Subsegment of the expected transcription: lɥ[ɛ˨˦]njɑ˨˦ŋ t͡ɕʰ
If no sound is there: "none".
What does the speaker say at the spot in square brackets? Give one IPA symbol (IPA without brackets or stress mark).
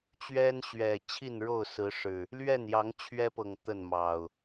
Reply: ɛ˥˨